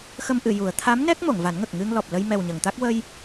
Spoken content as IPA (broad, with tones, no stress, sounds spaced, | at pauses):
x ə˧ m ʔ ɨ˨˩˨ j u˨˩˦ ə̯ t̪ʰ a˧˥ m n ɛ˦˥ k̚ m o˨˩˨ ŋ v a˨˩˦ n ŋ ə˨˩ k̚ ŋ ɨ˧ ŋ l ɔ˨˩ p̚ l ə˧ j m ɛ˨˩ w ɲ ə˨˩˨ ŋ t̪ a˦˥ k̚ w ə˧ j